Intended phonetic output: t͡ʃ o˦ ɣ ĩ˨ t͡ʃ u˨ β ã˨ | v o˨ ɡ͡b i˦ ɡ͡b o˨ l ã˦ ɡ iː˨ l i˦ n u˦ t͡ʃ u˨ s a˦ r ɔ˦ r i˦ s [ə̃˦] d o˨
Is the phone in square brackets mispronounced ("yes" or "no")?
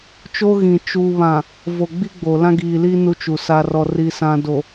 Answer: yes